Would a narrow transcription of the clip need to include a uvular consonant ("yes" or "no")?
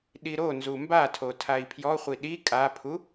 yes